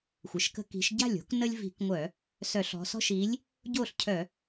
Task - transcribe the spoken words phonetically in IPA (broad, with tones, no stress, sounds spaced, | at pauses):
xʷ ə˩˧ ʃ k ə̤˦ k i̤˨˥ ʃ ɟ a̤˥˩ lʲ o̤˨˥ k n ə˦ lʲ v i̤˧˩˧ k ŋʷ œ˧˩˧ | s œ˧˩˧ ɬ ɔ̤˩˧ s ɔ̤˦ ʃ i˨˥ lʲ | ɟ o˥˩ ɬ cʰ œ˧˩˧